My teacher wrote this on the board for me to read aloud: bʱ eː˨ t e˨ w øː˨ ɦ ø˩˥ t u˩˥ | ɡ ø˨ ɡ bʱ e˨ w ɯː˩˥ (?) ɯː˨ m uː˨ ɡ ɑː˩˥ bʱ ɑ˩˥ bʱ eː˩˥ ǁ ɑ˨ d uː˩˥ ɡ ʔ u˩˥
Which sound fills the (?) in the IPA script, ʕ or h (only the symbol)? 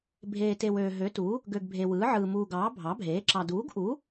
ʕ